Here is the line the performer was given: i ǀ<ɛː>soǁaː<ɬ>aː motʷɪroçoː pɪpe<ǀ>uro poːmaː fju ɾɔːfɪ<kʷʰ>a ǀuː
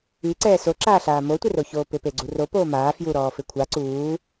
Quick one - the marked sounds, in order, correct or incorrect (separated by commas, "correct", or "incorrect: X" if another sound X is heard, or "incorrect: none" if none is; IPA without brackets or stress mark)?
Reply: correct, correct, incorrect: ɡ͡ǀ, correct